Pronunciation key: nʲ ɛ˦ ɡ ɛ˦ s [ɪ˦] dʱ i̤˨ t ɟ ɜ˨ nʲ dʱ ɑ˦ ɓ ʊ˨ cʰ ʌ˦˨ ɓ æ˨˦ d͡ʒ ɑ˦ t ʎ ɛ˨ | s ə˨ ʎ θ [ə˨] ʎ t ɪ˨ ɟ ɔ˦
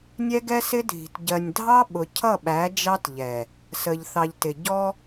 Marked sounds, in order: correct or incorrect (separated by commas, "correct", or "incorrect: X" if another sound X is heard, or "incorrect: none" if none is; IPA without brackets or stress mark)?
correct, incorrect: ɑ˨